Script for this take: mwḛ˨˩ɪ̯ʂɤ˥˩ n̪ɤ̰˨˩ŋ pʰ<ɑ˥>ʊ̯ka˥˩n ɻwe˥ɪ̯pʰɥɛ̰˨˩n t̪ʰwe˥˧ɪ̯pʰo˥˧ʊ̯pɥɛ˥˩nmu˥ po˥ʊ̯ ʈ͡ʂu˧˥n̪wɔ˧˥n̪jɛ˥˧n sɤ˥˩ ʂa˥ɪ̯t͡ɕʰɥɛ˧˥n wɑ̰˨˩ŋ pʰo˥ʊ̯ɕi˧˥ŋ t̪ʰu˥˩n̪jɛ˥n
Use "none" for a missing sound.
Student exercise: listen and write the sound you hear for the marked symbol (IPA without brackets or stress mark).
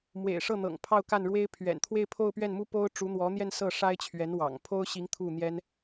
ɑ˥˧